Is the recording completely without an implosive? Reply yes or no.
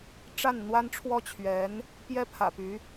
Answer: yes